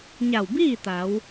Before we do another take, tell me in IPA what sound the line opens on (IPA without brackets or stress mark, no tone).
ɲ